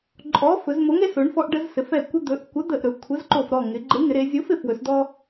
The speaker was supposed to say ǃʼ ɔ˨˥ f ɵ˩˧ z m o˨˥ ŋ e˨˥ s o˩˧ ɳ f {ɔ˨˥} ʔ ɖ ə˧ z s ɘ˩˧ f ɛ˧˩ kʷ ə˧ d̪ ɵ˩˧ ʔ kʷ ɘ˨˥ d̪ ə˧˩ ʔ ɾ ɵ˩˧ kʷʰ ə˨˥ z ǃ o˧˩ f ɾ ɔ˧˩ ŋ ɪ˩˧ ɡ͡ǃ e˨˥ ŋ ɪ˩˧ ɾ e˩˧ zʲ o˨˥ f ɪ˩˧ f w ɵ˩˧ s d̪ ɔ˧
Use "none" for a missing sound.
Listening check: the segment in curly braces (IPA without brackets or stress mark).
ɔ˧